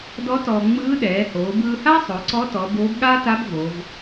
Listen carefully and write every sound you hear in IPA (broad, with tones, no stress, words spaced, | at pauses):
dɔ˧˥ tɔː˧ ŋ͡mɯː˧˥ ɗɛː˩˧hoː˩˧bɯː˧ha˥ sˤo˩˧ǀɔ˧˥tɔ˩˧ boː˧˥b ɠaː˥ta˧˥b vo˩˧v